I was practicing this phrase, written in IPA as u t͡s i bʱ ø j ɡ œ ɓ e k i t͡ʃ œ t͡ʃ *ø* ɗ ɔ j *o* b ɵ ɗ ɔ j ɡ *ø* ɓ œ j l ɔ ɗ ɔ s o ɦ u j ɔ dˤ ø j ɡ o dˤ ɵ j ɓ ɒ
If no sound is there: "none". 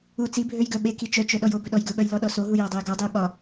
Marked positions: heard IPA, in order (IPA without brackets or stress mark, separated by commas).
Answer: œ, o, ɵ